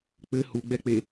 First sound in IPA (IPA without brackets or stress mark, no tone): k͡p